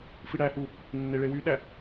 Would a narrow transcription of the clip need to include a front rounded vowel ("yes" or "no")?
yes